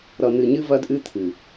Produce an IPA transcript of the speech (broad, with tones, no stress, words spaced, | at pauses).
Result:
ɾʌ˨n̪ɨ˨ɲɨ˦ vɐ˦dʔɨ˦ t̪ʰɨ˨